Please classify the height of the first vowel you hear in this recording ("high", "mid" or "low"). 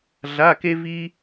low